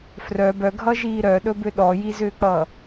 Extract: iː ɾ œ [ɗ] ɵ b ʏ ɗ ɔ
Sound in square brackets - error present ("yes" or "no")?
no